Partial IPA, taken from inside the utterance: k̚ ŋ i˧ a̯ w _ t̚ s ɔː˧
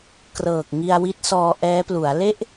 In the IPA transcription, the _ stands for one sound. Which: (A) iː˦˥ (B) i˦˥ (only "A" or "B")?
B